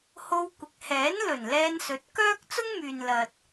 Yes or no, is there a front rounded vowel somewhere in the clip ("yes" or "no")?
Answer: yes